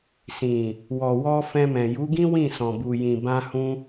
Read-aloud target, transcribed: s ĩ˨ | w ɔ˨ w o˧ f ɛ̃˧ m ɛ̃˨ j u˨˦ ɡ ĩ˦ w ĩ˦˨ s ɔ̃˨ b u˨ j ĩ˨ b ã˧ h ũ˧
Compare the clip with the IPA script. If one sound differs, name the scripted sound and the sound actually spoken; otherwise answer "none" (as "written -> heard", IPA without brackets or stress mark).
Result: o˧ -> ɔ˧